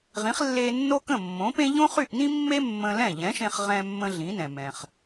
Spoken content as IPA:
ʁ ĩ˩˥ χ lː e˧ nː o˥ k ə̃˥˩ mː õ˩˥ p ẽ˥ ʎ õ˥ χ y˥˩ ʔ n ĩ˥ mː e˥ mː ə̃˧ l ɛ̃˥˩ ʎ ɛ̃˩˥ ʃ ẽ˧ χ ʁ ɛ̃˧ mː ə̃˧ ɮ ĩ˩˥ n ɛ̃˩ m ɛ̃˩ χ

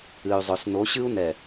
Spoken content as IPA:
ɨ˨ y̯ zˤ ɵ˨ s n o˨˦ ɕ ɨ˦ u̯ n ɛ˨

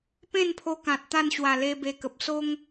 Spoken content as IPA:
p ẽ˥˧ n pʰ o˧ k ã˨ t̚ t̪ a˥˧ n ɕ w a˨˩ l e˧ b e˧ k ə˨ p̚ s o˦ ŋ

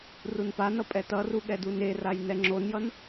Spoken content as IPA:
r u n p a n ʌ pʼ ɛ t ʌ r u ɠ ɛ d u n e r a j n ɛ ŋ͡ǁ o n j ʌ n

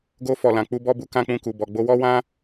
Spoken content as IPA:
ɡ o˧ f ɔ˨ l ã˨ k͡p u˧ b ɔ˦ b u˧ k ã˦ k͡p ũ˧ k u˨ b ɔ˨ ɡ͡b o˧ w ɔ˦ w ã˦

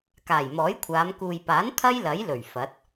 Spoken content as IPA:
k aː˨˩ j m ɔː˨˥ j kʷʰ aː˨˧ m k uː˨ j p aː˨˥ n t̪ʰ ɐ˥ j l ɐ˨˥ j l ɵ˨˩ ɥ f ɐ˨˥ t̚

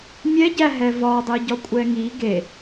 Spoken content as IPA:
mʲ ɛ ɟ æ ɦ ɛ v ɒ dˤ i ɟ ɒ kʷʼ ɛ ŋ i ɡ e

